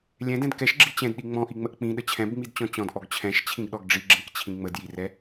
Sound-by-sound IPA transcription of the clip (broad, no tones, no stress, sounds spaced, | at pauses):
lʲ ɛ̃ d ɛ̃ d k ɛ ʃ ɡ͡ǁ i t͡ɕ ɛ̃ d ɗ i ŋ͡m ɔ̃ ʔ i ŋ͡m ə ʔ k͡p ĩ ɗ ə t͡ɕʰ ɛ̃ b ŋ͡m i d t͡ɕ ɔ̃ t͡ɕ ɔ̃ d ʔ ɔ ɡ t͡ɕʰ ɛ̃ ʃ t͡ɕʰ ĩ ɡ ɗ ɔ ɡ ɖ͡ʐ i ɡ͡ǁ ĩ k t͡ɕʰ ĩ ŋ͡m ə d j i r ɛ